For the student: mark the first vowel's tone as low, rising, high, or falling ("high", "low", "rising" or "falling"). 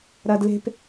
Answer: high